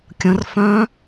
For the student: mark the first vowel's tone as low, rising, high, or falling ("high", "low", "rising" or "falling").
rising